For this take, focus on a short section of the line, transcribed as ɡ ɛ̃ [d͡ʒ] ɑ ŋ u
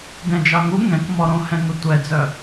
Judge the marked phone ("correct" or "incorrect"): correct